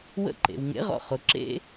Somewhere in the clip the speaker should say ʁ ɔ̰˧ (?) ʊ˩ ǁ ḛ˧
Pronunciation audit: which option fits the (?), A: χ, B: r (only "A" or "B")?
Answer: A